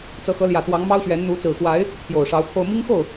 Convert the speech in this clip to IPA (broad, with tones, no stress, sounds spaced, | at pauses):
t͡s ɤ˨˦ x ɤ˨˦ l j ä˨˩ t̪ w ɑ˨˦ ŋ m ɑ˦ ʊ̯ ɕ ɥ ɛ˨˦ n n̪ u˨˦ t͡s ɹ̩˨˩ x w a˨˦ ɪ̯ | t̪ʰ j o˨˩ ʊ̯ ʂ ɑ˨˦ ʊ̯ pʰ o˧ ʊ̯ m i˦ ŋ x o˥˨ ʊ̯